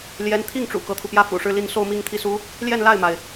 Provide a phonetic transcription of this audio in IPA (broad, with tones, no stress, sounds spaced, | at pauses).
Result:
l j ɛ˧˥ n t̪ʰ i˥˩ ŋ ʈ͡ʂ ṵ˨˩ k ɤ˦ t̪ʰ u˩ p j ä˥ f ṵ˨˩ ʂ ɻ̩˥˧ l i˥˧ n s o˥˧ ʊ̯ m i˥˧ ŋ t̪ʰ i˥˩ s u˥ | l j ɛ˥˧ n l a˥˩ ɪ̯ m a˩ ɪ̯